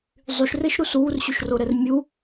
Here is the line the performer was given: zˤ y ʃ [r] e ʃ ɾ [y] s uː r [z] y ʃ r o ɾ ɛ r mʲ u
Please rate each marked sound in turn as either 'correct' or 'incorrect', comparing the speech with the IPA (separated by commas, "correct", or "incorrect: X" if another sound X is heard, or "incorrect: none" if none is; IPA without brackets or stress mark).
correct, incorrect: u, incorrect: ɕ